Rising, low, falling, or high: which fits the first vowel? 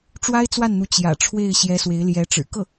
high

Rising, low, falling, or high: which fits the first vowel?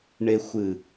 low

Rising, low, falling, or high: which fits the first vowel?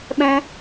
high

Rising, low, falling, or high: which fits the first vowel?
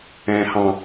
high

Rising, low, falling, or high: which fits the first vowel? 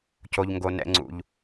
low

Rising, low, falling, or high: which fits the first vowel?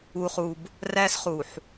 low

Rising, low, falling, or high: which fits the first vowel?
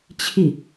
falling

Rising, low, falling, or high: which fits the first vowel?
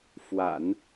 low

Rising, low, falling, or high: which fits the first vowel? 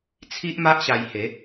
high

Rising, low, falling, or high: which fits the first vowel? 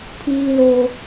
high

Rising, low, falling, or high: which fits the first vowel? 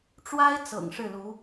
high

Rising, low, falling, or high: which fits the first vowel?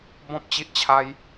high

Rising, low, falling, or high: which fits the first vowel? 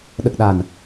low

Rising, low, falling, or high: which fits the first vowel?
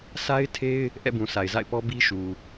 high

